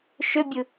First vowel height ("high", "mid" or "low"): high